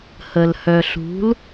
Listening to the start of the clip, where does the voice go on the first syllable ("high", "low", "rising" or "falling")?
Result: low